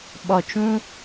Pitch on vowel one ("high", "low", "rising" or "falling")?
low